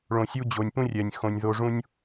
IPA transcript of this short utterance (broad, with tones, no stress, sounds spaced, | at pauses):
ɭ õ˨ sʲ u˧ d͡ʑ o˨ nʲ p ũ˦ rʲ ɛ˨ nʲ x õ˧ nʲ ð o˦ ʐ ũ˦ nʲ